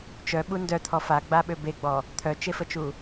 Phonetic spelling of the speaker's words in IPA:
t͡ʃ œ ɓ u n d œ t̪ʰ ɔ f a ɡ͡b a ɓ ø b e ɡ͡b ɔ | t̪ʰ œ t͡ʃ e f ə t͡ʃ u

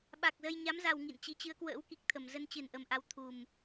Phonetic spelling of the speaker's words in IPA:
ɓ a˨˩ k̚ z ə˧ j ɲ a˨˦ m z a˨˩ w ŋ ḭ˧˨ n t͡ɕ i˨˦ t͡ɕ ɨ˨˦ ə̯ k w ə̰ː˧˥ w k i˨˩ k̚ t̪ʰ ə˨˩ m z ə˧ n t͡ɕ ɨ˨˩ n ʔ ə˨˩ m ʔ a˨˦ w t̪ʰ u˨˩ m

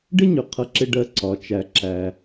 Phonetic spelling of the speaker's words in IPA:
ɖ ɪ˥ ɲ ʊ˩ qʰ ʌ˧ ǁ ɪ˧ ɖ ɜ˧ ǀ ɒ˩˧ t͡ʃ æ˩ ǁ æ˩

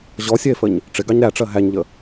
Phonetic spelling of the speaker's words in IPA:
ʑ ɔ sʲ ɛ e̯ f ə ɲ | ʈ͡ʂ ɪ ɡ ɑ ɲ ɾ æ ʈ͡ʂ ɜ ɦ æ ɲ ʎ ə

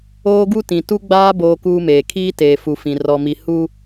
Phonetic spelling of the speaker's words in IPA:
oː˦ ɡ u˦ t ĩ˨ t u˦ ɡ͡b aː˦ b oː˦ k uː˦ m eː˨ kʰ iː˦ t eː˨ f u˨ f ĩ˨ r ɔ˨ m i˨ h u˦

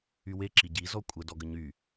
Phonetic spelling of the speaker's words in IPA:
y w e ǁ i ɟ i z ɔ kʷʼ ə d ɔ ɡ ə ɲ y

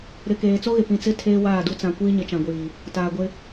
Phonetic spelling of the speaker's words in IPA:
ɾ ɪ˨ k eː˨ t͡s o˦ ɣ ɪ˨ p ĩ˨ t͡s ɪ˦ tʰ eː˦ w aː˦˨ d u˦ t͡s ã˨ kʷ iː˦ ɲ ɪ˨ t͡ʃ ã˨ ɡʷ iː˨ | t aː˨ ɡʷ ɪ˦

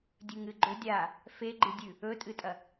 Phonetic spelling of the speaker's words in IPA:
dʲ ʉ ŋ ɨ ɡ͡ǃ ɵ dʲ a | f e ɡ͡ǃ ɨ dʲ ʉ | ɵ tʼ ɨ tʼ ɐ

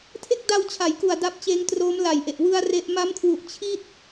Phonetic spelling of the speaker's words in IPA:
tʰ e˥˩ k̚ d a˧ w t͡ɕʰ a˩˦ j k u˨˩ a̯ d a˦˥ p̚ t͡ɕ eː˦˥ ŋ t r oː˦˥ m l a˨˩ j ʔ e˨˩ ʔ w ɯ˧ a̯ r e˦˥ ʔ m a˦˥ m kʰ w u˨˩ ʔ t͡ɕʰ i˥˩ t̚

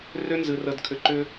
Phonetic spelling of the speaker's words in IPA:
r ʏ˦ n z ɨ˨ r ə˨ d kʰ ʏ˨ ǃ ʏ˦

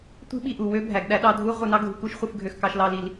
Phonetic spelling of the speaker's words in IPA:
tʷ i̤˦ ɓ i˨ ʔ u˨ w ø˦ bʱ æ˨ ɡ ɗ æ˦ ɗ ɑ˦ dʱ u˦ ʁʷ ɯ˨ n ɑ˦ ɡʱ ṳ˦ k u˦ ʃ χʷ ɯ˨ f ɡʱ ø˨ x k ɑ˨ ʃ l ɑ˨ l i˨ l

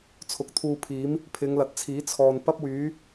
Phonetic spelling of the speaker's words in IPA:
t͡sʰ ʊ˨˥ k̚ t̪ʰ uː˧ pʰ iː˨˥ m | pʰ ɪ˨˧ ŋ l ɐ˨˥ t̚ t͡sʰ iː˨˥ t͡sʰ ɔː˨ n p ɐ˥ p̚ w yː˨˥

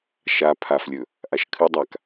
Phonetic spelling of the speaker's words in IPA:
ʃ a pʰ a f lʲ ɵ | ʔ a ʃ kʰ ɨ dˤ a k

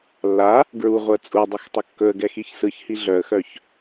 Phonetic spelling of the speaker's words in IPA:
lː a | ɡ ɹ u ʁʷ ɜ t͡sʼ u dˤ ɵ x tˤ ə kː ɵ ə̯ ɡ ɛ x i ç s ɯ ç h i ɮ œ ə̯ x œ ç

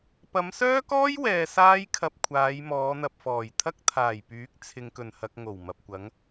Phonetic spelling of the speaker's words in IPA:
p ɐ˨˧ m s œː˥ k ɔː˥ j w ɛː˨ s aː˥ j kʰ ɐ˧ p̚ kʷʰ aː˨˧ j m ɔː˨˧ n̪ ɐ˨ p̚ f ɔː˨˩ j t̪ʰ ɐ˥ k̚ t̪ʰ aː˨˩ j p yː˨˥ k̚ t͡sʰ ɪ˨ ŋ k ɵ˨˩ n h ɐ˨ k̚ ŋ o˨˩ w m ɐ˨ p̚ kʷ ɐ˨˥ ŋ

